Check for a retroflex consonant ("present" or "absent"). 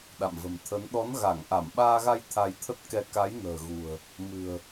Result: absent